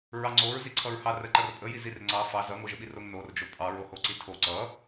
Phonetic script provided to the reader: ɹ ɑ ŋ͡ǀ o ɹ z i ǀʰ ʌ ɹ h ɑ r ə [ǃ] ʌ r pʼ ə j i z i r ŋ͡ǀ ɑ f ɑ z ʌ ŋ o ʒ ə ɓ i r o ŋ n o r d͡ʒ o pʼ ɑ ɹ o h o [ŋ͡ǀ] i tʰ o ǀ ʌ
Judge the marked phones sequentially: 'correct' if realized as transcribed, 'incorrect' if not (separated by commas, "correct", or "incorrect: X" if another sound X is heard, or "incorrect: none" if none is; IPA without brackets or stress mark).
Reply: correct, incorrect: ǀ